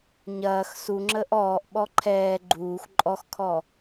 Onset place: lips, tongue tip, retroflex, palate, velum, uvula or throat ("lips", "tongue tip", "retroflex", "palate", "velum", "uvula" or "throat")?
palate